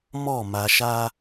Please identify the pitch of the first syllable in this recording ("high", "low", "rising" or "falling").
falling